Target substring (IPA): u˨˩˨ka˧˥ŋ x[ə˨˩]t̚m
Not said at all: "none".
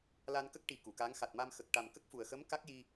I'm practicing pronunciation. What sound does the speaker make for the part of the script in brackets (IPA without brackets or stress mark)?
a˨˩